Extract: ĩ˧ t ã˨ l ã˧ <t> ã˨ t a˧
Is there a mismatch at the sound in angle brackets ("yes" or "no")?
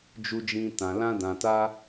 yes